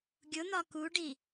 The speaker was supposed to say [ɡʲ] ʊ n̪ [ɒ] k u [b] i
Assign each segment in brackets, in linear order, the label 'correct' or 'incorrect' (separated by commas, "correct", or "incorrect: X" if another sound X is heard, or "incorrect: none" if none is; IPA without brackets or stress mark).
correct, correct, incorrect: ɖ